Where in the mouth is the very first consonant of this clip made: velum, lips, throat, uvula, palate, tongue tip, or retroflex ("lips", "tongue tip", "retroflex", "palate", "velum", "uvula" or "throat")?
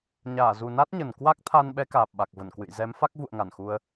palate